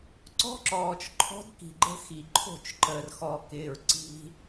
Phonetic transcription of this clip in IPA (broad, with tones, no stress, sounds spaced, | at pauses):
ǀ ɔ̤˦ ǁ ɔː˨ t͡ʃ ǃʰ ɔ̤˦ d k i̤˨ ɡ͡ǃ ə̤˦ x i˨ ǃʰ o̤˦˨ t͡ʃ ǃ əː˨ r x ɔ˨ k ɪː˨ ɹ ǀ i̤˦